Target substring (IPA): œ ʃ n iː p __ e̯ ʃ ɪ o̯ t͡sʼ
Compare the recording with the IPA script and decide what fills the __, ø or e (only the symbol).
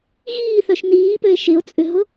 ø